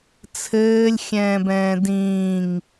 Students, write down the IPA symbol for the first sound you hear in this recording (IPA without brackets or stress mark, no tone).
t͡sʰ